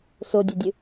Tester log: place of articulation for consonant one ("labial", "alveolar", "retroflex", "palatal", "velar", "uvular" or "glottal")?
alveolar